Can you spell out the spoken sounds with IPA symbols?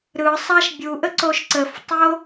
ɾ ɯ sˤ a ʃ bʲ u ʔ ə ǀ o ʃ ǀ ə f tˤ o

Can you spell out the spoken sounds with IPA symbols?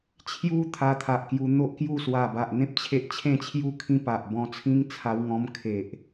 t͡ɕʰ j u˧ t̪ʰ a˧ t̪ʰ a˨ ʔ k j u˧ n̪ o˦ ʔ k j u˥˧ s w a˨˩ b a˨ ʔ n̪ ẽ˦ p̚ t͡ɕʰ e˦ ʔ t͡ɕʰ ẽ˥˧ t͡ɕʰ j u˥˧ kʰ ĩ˧ p a˨ ʔ b ɔ̃˧ t͡sʰ ĩ˦ ŋ t͡sʰ a˧ w ŋ ɔ̃˧ m kʰ e˨ ʔ

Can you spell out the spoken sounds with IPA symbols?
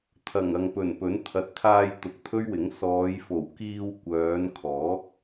t̪ʰ ɐ˨˩ ŋ ɐ˨ ŋ p ɵ˨˩ n p ɵ˨˥ n t̪ʰ ɐ˨ t̚ t̪ʰ aː˧ j t̪ ʊ˨ k̚ t̪ʰ ɵ˥ ɥ w ɪ˨˥ ŋ s ɔː˨˧ j f o˨˩ w k iː˧ w kʷ œː˨˧ n kʰ ɔː˨˥ k̚

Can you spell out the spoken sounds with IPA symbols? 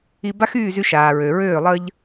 i˧ b a˦ x yː˦˨ z y˧ ʃ aː˨ ɹ ø˨ ɹ øː˦˨ lˠ əː˦ ʎ

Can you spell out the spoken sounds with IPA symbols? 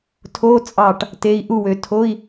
tʰ o˧˥˧ t͡sʼ ɑ˧˩ ʈ | t e˩˧˩ i̯ ʔ u˧˩ w ø˩˧ tʰ o˧˥˧ i̯

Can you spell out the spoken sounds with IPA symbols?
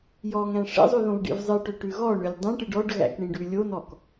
j ɔ ŋ æ̃ ʂ ḛ zˤ ʉ ð õ v ɖ ḭ v zˤ ɨ ʈ ø ʈ ʉ ɣ ɔ ɳ ø lʲ dˤ ẽ ʈ ɨ ɖ ɔ ɖ ɣ æ̰ k ɳ ĩ ɖ ʉ lʲ o n ɔ k

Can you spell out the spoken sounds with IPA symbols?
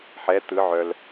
ħ ɛ t̪ ɯ ʕ œ l

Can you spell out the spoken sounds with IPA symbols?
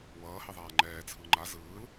w ʌː h e ðˤ aː ŋ͡ǃ ɛː t͡sʰ ɯ ŋ͡ǃ a z ɯː l

